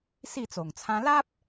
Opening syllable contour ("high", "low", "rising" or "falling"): falling